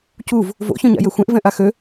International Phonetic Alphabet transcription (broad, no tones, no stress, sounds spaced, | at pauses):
c u v | v o̰ ç œ̃ ɲ a̰ j ø xʷ ɛ̃ ʔ v ɛ̃ ʔ a x ø